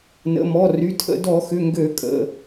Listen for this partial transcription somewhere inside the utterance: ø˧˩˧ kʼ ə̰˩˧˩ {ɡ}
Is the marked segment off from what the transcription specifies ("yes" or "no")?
yes